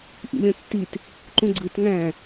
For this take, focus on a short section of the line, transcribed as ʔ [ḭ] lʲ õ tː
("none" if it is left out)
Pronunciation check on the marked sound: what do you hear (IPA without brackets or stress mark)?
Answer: ḭ